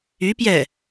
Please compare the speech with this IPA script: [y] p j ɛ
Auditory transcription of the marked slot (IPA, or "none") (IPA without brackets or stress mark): y